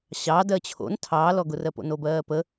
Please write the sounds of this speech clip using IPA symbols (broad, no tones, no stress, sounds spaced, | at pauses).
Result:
ɕ ɑ d ɜ t͡ɕʰ o̰ n tʰ ɑː l ɔ ɡ ʊ r ɜ p o̰ n o b ɜː p ə